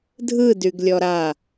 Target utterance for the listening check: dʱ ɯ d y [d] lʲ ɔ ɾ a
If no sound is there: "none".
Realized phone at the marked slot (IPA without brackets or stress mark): ɡ